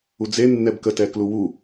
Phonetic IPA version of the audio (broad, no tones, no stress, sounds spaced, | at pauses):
u d͡z e nː ɛ b k ə t ɛ k l u w u